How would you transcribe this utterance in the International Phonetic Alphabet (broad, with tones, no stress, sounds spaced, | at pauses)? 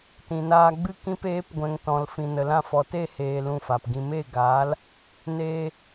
t ĩ˨ n aː˧ ɡ͡b ɨ˦ k ĩ˧ p eː˨˦ p ɡʷ ɛ̃˨ ŋ t ɔ̃˨ l f ĩ˨ n ə˨ l ã˦˨ f ɔ˨ t e˦˨ h eː˧ l ũ˧ f a˨ p ɡ ĩ˧ m e˦˨ ɡ aː˨˦ l | n eː˧